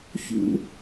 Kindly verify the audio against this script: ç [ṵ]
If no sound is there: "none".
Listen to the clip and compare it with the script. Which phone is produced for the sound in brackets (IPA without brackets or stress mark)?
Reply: ṵ